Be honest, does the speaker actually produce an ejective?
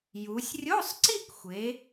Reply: no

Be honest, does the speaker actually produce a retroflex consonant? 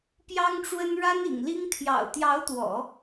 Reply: yes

